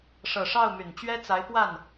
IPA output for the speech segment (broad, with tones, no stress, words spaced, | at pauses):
ʂɤ˨˩ʂɑ˥˩ʊ̯ my˨˩nt͡ɕɥɛ˥t͡sa˧˥ɪ̯ pwa˥˩n